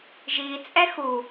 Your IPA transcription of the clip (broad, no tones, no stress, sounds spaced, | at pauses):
ʒ i t͡sʼ ɛ x u